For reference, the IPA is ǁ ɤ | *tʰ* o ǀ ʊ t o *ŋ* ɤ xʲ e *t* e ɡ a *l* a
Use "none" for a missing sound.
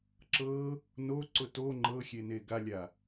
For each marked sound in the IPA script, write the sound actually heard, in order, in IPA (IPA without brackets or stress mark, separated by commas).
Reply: n, ŋ͡ǃ, n, lʲ